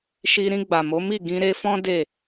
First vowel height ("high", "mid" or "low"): high